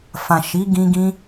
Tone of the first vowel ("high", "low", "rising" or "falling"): low